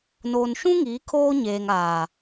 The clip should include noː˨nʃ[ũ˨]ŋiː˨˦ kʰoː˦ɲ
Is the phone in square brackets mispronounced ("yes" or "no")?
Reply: yes